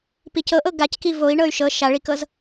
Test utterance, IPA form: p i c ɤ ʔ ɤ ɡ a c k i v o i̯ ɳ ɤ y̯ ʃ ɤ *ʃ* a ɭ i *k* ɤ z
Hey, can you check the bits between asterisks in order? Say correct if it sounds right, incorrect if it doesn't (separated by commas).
correct, correct